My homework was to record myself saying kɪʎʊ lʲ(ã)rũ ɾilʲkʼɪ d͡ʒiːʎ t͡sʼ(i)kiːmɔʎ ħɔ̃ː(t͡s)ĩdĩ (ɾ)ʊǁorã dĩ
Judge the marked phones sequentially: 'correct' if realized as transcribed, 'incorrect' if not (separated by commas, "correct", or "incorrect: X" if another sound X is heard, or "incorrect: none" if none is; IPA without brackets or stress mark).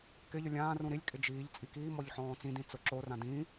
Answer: incorrect: ãː, correct, correct, incorrect: t͡s